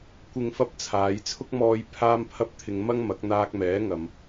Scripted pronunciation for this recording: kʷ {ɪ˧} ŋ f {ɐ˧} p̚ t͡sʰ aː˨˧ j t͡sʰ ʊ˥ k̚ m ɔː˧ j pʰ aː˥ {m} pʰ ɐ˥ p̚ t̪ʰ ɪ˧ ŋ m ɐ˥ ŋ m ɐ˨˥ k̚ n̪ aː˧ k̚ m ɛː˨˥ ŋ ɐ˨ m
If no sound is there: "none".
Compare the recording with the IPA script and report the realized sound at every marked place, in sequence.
ɪ˧, ɐ˥, m

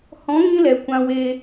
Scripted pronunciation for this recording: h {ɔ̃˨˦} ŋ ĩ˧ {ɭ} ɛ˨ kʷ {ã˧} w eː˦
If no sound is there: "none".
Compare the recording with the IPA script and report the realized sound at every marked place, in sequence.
ɔ̃˨˦, l, ã˧

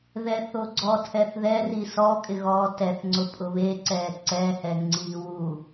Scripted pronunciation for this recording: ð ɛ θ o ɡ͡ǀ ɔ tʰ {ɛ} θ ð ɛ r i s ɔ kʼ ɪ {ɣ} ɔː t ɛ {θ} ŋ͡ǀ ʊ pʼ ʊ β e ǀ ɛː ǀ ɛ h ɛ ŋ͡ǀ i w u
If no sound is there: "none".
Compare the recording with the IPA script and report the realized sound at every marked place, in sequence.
ɛ, ɣ, θ

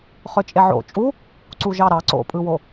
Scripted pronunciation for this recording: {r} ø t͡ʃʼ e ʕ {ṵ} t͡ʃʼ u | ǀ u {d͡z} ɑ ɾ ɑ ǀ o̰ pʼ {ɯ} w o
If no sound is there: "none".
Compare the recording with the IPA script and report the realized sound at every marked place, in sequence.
χ, o̰, ʒ, ɯ

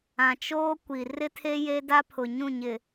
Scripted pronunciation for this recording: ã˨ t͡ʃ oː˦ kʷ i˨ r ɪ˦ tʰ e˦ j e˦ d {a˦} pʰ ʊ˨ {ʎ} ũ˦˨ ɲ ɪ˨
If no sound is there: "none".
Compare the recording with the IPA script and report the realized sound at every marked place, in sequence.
a˦, ɲ

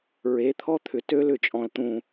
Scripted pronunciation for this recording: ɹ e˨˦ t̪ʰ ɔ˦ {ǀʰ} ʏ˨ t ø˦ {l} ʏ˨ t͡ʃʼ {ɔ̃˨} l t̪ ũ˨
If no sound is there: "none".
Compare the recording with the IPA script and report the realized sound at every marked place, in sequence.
t̪ʰ, l, ɔ̃˨

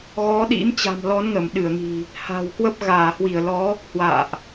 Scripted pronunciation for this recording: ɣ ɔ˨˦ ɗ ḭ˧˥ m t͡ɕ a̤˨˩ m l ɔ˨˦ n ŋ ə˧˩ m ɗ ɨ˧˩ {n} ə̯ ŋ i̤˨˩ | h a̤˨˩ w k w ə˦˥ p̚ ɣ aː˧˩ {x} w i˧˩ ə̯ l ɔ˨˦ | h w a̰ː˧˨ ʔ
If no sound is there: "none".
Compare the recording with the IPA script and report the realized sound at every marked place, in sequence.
none, h

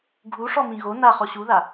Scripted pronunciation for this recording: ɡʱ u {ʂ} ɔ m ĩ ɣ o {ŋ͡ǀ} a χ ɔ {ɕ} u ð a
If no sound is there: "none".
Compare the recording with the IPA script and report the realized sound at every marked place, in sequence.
ʂ, n, ɕ

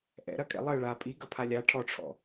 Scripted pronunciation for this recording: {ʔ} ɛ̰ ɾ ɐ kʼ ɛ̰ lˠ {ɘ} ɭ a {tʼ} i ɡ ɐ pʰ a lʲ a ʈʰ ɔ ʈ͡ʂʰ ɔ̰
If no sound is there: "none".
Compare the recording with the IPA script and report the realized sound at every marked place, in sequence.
ʔ, ɘ, pʼ

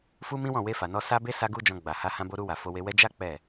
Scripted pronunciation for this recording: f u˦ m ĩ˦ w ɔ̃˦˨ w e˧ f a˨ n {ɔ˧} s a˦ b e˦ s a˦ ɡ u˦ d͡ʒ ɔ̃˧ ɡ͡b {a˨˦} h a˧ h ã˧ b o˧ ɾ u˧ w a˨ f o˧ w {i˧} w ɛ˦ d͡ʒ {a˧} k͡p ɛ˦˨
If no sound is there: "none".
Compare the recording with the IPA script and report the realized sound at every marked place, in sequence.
ɔ˧, a˨, e˧, a˦

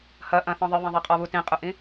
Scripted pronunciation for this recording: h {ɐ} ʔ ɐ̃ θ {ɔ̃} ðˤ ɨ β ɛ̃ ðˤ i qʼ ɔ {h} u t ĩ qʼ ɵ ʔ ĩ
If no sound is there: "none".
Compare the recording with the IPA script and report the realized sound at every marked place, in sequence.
ɐ, ɔ̃, β

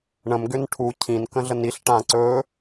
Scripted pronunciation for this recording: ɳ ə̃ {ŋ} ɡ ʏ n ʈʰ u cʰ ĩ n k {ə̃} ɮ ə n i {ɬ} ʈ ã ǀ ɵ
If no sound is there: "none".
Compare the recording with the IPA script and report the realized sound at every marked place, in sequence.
m, ə̃, ɬ

